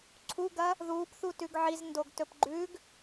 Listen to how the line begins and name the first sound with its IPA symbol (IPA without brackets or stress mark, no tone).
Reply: ǀʰ